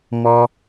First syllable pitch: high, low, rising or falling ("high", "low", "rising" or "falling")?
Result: high